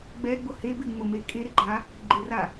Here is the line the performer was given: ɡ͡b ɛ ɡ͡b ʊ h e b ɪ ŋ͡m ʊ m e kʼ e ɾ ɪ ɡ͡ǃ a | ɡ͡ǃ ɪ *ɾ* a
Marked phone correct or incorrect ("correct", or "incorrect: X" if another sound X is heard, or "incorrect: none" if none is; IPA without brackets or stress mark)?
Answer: incorrect: r